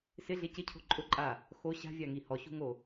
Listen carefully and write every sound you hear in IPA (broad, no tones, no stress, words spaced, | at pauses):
sɪɮe cɪcʰo̤ ǃʼʊǃʼa | xo ɕa̤vʲaŋi hɔɕṳŋo